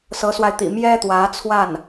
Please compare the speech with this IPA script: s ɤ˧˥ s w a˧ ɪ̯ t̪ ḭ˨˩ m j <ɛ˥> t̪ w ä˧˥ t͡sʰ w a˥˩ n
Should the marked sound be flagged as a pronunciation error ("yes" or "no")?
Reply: no